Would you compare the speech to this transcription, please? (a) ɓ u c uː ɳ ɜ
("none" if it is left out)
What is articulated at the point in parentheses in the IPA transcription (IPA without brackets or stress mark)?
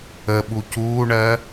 ə